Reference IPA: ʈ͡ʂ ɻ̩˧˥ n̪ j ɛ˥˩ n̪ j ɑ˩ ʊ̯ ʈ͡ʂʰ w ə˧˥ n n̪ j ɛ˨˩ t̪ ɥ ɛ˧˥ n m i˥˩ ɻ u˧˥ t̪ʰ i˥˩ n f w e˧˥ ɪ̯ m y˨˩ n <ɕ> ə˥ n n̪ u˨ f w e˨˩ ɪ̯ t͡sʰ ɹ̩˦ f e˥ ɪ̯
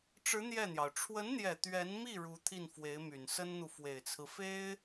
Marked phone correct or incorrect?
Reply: incorrect